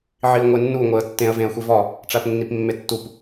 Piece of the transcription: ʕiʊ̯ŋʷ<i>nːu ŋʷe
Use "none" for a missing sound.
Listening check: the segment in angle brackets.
e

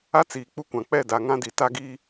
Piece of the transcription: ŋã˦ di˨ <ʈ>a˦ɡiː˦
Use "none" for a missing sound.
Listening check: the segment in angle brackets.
t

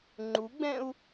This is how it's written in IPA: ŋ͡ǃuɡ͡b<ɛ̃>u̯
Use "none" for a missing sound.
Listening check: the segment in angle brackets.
ɛ̃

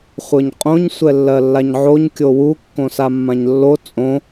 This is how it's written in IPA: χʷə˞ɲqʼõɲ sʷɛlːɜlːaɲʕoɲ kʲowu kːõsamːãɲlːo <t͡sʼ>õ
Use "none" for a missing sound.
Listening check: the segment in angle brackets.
t͡sʼ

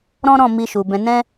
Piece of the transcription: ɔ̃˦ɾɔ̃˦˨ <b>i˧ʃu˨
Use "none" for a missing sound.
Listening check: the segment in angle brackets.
m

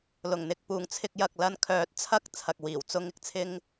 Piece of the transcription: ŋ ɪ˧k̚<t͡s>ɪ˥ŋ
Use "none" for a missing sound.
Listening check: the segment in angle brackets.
t͡sʰ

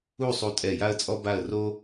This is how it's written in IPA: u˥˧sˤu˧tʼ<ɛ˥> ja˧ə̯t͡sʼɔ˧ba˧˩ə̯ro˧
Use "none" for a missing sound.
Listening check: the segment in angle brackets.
ɛ˧˩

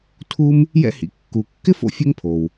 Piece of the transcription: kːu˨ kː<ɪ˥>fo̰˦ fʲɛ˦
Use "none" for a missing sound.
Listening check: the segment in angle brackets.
ɪ˥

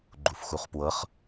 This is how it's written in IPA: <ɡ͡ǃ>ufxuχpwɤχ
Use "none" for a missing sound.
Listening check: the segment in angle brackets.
ɡ͡ǃ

